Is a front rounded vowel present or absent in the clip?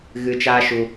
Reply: absent